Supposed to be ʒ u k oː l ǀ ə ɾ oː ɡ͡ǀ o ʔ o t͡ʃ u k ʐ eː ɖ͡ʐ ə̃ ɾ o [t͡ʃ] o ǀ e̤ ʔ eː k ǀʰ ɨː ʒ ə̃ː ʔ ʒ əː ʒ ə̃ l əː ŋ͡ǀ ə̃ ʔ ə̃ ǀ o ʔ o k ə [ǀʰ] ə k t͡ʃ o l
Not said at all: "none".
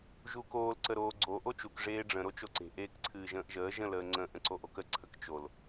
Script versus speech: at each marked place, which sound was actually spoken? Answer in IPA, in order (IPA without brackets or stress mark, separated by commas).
t͡ʃ, ǀʰ